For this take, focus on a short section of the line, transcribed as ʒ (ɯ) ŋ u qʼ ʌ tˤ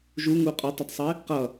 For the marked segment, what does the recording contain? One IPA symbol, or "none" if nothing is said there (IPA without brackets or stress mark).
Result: u